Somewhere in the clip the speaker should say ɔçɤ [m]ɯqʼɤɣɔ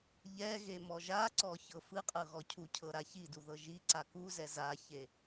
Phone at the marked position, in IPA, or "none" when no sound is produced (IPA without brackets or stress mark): f